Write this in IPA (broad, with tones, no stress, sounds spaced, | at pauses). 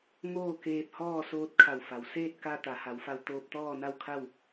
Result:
ŋ oː˥˨ k eː˧ p̚ h ɔː˥˨ s oː˧ t̚ kʰ a˧˩ w f a˩˧ w s eː˥˨ t̚ k a˧ t̪ a˩˧ h a˩˧ w f a˧ w t̪ oː˧ p̚ t̪ ɔː˥˨ n a˥˨ w kʰ a˥˨ w